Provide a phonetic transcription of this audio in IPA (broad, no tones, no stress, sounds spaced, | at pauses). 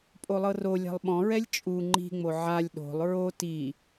pʼ o lˠ ɤ r o lʲ a̤ lˠ ɓ ɔ̃ ɹ ɛ lʲ t͡ʃʼ u ŋ͡ǃ i̤ ŋ͡m o ʕ a lʲ ɗ o̤ lˠ ɹ o t i